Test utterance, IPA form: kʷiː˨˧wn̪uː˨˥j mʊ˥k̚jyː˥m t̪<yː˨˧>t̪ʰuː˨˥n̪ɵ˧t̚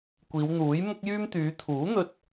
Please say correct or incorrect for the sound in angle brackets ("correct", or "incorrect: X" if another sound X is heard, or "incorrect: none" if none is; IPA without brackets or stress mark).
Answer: correct